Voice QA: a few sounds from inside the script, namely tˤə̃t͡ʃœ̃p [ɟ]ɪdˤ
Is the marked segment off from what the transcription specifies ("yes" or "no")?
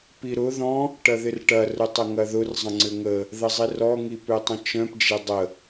yes